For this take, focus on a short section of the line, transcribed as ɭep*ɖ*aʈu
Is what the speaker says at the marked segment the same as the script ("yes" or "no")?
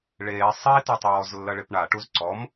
no